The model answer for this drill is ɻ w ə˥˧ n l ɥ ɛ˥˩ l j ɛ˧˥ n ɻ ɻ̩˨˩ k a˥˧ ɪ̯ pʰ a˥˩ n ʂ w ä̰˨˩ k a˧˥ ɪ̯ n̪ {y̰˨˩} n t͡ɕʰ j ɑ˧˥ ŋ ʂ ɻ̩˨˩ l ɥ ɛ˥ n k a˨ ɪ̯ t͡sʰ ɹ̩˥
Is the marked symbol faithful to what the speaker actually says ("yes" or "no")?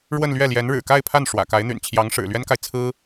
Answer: yes